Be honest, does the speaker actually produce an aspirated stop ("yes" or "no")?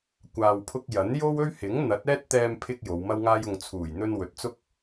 yes